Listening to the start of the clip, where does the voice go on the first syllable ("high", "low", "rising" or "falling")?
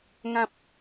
high